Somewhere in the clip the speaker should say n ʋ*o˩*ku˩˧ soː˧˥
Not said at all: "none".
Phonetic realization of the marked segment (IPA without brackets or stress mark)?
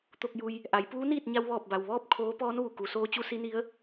u˩